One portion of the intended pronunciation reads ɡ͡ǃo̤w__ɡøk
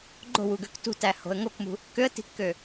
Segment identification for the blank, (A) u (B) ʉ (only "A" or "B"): A